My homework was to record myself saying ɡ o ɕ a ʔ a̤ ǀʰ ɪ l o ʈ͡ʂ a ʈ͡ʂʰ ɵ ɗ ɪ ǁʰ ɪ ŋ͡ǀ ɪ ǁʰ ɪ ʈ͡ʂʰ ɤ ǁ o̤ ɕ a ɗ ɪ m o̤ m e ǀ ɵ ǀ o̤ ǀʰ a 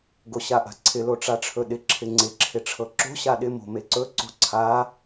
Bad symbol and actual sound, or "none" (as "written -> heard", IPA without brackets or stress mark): none